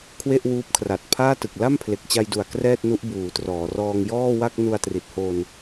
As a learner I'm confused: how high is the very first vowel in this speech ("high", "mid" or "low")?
mid